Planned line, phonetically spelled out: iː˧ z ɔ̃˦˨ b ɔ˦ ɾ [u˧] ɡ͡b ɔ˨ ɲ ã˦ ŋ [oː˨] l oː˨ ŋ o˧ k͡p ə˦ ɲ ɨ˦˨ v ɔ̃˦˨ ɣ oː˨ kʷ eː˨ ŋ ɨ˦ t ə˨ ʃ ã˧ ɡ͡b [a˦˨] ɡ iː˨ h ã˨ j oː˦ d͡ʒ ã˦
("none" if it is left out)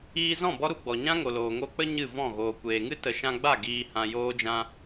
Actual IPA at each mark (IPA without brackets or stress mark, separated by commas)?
u˧, o˨, a˦˨